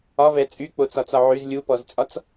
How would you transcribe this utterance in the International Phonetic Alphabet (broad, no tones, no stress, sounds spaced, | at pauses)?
ɒ v ɛ t͡sʼ y k͡p o t͡s ɒ t͡s ɒ ʕ y z lʲ u p ɔ z t͡sʼ ɒ t͡s